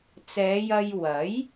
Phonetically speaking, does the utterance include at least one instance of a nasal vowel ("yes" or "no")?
no